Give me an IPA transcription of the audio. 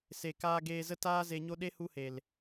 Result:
s e˨ k aː˧ ɡ eː˧ z ə˦ t aː˦ z e˧ ɲ o˦ ɗ e˦ h u˦ h e˨ l

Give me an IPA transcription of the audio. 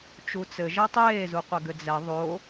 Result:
t͡ʃ u t͡s ɘ ʒ ɛ tˤ eː z u qʷ ɛ ɡ ɘ d͡z ɛ ðˤ o

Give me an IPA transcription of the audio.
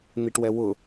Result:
n̪ i ʈ w ɛ w ʊ

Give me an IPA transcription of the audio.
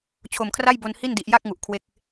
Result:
t͡ɕʰ o˨˩ m kʰ r a˥˩ j b o˧ n h i˥˩ n d i˨˩ ʔ j a˥˩ k̚ ŋ u˨˩ ʔ kʰ w e˦˥ k̚

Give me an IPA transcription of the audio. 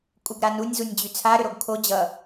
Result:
kʼ u ɡ ɾ a n u nʲ z u nʲ d͡ʑ y t͡sʰ a ɾ ʏ ɾ o ɡ kʰ o d͡ʑ ʌ

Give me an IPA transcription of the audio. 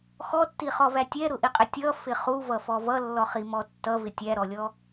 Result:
x ɔ tː i χ ɔ v æ tʲ ɛ ɾ ʊ ʔ i qʼ ɪ tʲ ʌ f ɪ χ u v ʌ f ɔ v ʌ lː ɔ χ i m ɔ tː ʌ v ɪ tʲ æ ɾ ɔ lʲ ɔ

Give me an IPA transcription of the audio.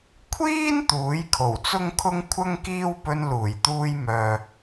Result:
kʷʰ iː˥ n t̪ uː˨˥ j kʰ o˨˩ w t͡s ʊ˥ ŋ kʰ ʊ˥ ŋ kʷʰ ɐ˥ ŋ k iː˥ w p ɵ˧ n l uː˨˩ j t̪ uː˧ j m œː˨

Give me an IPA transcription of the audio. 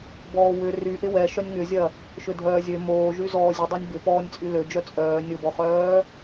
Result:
b ɔː w ʏ r y ʔ ɪ w ɛ ʃ œ nʲ ŋ ʏ zʲ ɐ | ʃ ʏ dʱ œː zʲ ø m oː ʒ y z ɔː zʲ ə dˤ ø nʲ b ɪ p ɔː nʲ t͡sʼ y l ø d͡ʒ œ t͡sʼ œː nʲ ʊ b ɔ χ œː

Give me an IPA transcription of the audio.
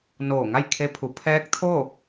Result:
n oː˧˩ ŋ a˥˨ j kʰ e˧˥ pʰ u˩˧ pʰ ɛː˧˥ k̚ t̪ʰ o˥˨

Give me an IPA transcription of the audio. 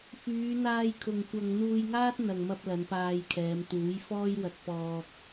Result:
f yː˨˧ n̪ aː˧ j kʰ ʊ˨ ŋ kʷ ɐ˧ ŋ n̪ uː˧ j ŋ aː˥ t̚ n̪ ɐ˨ ŋ m ɐ˧ p̚ l ɐ˨˧ n p aː˧ j kʰ ɛː˨˧ m t̪ uː˨˥ j f ɔː˥ j w ɐ˧ t̚ p ɔː˧ k̚

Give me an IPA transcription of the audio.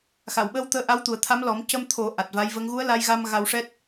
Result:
x a˨˩˨ w ɓ əː˧˥ w t̪ əː˧˥ ʔ a˧˥ w t̪ u˨˩ ə̯ t̪ʰ a˧˥ m l ɔ˨˩˦ m c ə˧ m t̪ʰ o˨˩˦ ʔ a˨˩ t̚ v a˧˥ j v ə˧˥ ŋ ɣ u˧˥ ə̯ l a˧ j ɣ a˧ m ɣ a˧ w ʂ ɛ˦˥ t̚

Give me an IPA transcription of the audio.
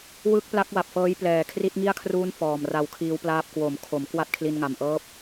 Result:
w ɯ˦˥ k̚ p l a˦˥ k̚ w a˨˩ p̚ f ɤː˦˥ j p l ɛː˨˩ kʰ r i˦˥ t̚ ŋ i˥˩ a̯ kʰ r uː˦˥ n f ɔː˨˩ m r a˧ w kʰ iː˦˥ w p l aː˦˥ p̚ k w o˩˦ m kʰ o˩˦ m k w a˥˩ t̚ kʰ l i˧ n ŋ a˨˩ m ʔ ɤː˥˩ p̚

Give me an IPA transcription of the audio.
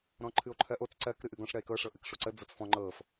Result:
ɾ ɔ̃ ǃʰ ɨ o̯ ǃʰ ɜ ʔ o t͡s ǀ ɜ k ɾ ɨ ʔ ɨ ɡ ɔ̃ ʂ ɾ ɜ e̯ k ɤ ʂ ɤ ʔ ɨ k ʂ o ǀ ə d͡z ɤ t͡s f ɔ̃ ŋ͡ǃ ɤ f

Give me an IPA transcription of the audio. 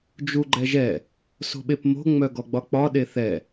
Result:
d͡ʒ u ɡ͡ǃ ɛ ʒ ɛ | s o̤ ɓ e p m o̤ ŋ͡m œ ɡ ɔ ɡ͡b ɒ k͡p ɒ ɗ e θ ɛ

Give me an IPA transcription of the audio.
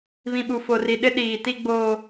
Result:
β ĩ˨ ɓ u˨ f o˨ r i˨ ɗ ɪ˦ ɗ iː˨ t i˦ ɡ͡b oː˦

